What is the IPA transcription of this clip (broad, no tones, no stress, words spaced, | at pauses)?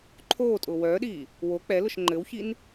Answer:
ǃʰoːtʼʊː wœːɗiː | wo k͡pɛ lʊʃŋ͡ǃɘwçin